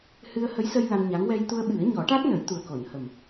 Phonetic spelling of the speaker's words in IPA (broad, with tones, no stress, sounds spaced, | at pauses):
h ɨ˧ ə̯ h ə˧˥ j s ə˧ j l a˧ n ɲ a˧˥ ŋ w ɛ˧ j t̪ u˧ ə̯ ɓ ɨ˨˩˦ ə̯ ɲ ɔ˨˩˦ ʈ a˦˥ t̚ n ə˨˩˦ j t̪ u˨˩ ə̯ k o˨˩˨ n h ə˨˩ m